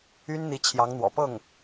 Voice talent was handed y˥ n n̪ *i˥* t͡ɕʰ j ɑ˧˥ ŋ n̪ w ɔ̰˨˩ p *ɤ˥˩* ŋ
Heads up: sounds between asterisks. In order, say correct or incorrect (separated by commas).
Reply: incorrect, correct